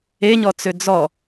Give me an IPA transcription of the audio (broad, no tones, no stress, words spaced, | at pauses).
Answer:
eɲɔt͡sø d͡zɔ